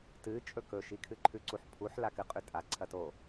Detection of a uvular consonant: present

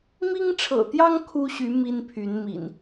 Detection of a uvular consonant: absent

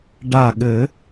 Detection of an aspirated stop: absent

